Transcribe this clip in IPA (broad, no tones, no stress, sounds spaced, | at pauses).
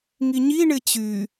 ŋ i ɲ i ɳ ɪ t͡ɕ y